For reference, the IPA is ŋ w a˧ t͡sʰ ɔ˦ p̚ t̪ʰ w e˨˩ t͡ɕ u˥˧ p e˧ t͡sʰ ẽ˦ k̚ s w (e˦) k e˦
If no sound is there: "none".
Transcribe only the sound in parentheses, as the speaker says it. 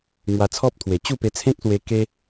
e˧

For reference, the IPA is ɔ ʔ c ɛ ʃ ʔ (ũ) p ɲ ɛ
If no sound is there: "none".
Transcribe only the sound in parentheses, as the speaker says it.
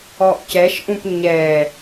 ũ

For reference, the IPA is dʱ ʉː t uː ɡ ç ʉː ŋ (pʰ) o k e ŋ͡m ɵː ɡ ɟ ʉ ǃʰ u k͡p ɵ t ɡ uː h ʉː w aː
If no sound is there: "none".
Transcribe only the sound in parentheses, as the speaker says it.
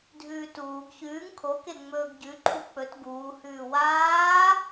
kʰ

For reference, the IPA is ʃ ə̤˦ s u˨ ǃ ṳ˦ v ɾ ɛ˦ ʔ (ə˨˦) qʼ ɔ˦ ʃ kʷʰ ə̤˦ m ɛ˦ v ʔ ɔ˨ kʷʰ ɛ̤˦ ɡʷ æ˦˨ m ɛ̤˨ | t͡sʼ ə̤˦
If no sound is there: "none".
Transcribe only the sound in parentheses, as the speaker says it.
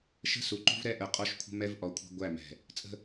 ə˨˦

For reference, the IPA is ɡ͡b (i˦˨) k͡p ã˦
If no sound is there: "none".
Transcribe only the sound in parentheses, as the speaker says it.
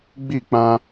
i˦˨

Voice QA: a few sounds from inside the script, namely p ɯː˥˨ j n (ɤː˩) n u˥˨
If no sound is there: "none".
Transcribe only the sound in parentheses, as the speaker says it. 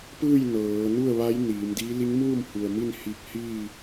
ɤː˩˧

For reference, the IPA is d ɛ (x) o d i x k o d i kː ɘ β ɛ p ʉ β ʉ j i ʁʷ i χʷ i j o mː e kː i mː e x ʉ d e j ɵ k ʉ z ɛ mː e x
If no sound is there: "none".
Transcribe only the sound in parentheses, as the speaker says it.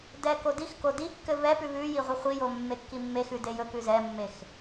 k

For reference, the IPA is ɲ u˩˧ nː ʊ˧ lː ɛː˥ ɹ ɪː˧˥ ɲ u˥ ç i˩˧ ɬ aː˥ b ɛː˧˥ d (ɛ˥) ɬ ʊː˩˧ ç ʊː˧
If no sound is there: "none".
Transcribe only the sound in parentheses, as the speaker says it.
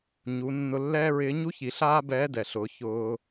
ɛ˩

